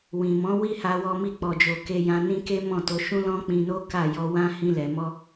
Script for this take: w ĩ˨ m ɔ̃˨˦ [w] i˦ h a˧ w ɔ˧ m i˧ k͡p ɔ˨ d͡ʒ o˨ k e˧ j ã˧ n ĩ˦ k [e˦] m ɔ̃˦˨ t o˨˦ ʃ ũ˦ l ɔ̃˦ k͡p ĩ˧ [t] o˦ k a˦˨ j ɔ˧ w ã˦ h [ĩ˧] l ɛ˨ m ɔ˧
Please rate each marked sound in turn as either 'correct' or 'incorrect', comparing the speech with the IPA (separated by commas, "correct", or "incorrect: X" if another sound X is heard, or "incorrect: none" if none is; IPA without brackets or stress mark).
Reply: correct, correct, incorrect: n, correct